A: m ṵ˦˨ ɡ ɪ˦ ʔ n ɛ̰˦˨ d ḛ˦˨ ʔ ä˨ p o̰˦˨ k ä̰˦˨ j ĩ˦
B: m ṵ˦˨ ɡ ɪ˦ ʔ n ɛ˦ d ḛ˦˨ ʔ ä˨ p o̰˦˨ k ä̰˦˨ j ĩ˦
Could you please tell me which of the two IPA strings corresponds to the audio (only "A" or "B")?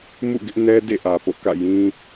B